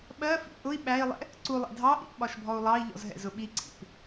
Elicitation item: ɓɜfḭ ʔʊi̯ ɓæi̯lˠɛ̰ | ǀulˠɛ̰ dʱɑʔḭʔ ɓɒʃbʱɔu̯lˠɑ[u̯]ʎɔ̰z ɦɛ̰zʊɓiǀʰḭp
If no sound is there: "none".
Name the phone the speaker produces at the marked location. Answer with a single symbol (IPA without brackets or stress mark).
i̯